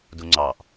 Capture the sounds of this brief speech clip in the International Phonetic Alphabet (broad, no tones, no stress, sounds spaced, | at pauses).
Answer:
d u ŋ͡ǀ ɑ ʔ